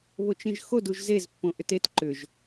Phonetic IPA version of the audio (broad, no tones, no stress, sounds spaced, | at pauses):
β o t͡ʃ ĩ ʒ x o d u ʒ z e z pː õ ʔ ʏ t e t ǃ ʏ ʒ